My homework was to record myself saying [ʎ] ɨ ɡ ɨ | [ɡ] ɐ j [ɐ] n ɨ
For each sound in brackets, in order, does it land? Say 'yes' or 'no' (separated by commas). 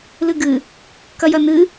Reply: no, no, yes